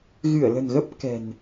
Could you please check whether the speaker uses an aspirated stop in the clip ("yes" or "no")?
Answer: no